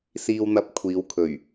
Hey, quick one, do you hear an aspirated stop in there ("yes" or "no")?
yes